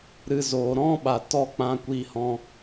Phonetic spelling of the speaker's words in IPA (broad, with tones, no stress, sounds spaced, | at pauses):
ɾ ɨ˧ z oː˨ ɾ ɔ̃˦ ɓ a˨ t ɔ˦˨ k͡p ã˧ kʷ i˧ h ɔ̃˧